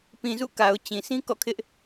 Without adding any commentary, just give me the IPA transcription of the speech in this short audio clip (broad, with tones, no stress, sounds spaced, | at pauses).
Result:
p ĩ˨ z ṵ˦˨ k a˨ ʊ̯ t͡ɕ ĩ˨ s ĩ˦ k ɔ̰˦˨ kʰ ɪ˦ ʔ